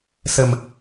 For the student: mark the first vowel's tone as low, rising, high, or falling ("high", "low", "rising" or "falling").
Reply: low